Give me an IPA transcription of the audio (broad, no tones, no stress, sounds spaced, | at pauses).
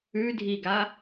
ʉ dʱ i ɡ a